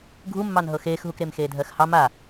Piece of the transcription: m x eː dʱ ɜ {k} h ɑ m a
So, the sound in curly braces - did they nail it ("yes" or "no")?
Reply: no